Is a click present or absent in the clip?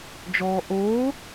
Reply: absent